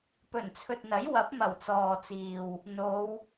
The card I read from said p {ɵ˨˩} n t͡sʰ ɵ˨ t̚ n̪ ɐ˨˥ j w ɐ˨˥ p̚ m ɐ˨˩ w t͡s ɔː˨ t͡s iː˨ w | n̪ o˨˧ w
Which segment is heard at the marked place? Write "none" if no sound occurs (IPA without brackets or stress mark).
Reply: ɵ˨˩